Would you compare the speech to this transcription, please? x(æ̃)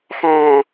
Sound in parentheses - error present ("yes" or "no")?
no